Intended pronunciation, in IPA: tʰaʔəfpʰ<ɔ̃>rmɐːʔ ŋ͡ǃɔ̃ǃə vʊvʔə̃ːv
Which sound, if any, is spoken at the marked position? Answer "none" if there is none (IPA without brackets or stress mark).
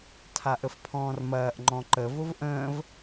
ɔ̃ː